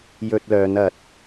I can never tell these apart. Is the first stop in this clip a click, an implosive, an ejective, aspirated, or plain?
plain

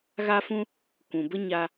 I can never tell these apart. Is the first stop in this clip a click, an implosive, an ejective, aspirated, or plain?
plain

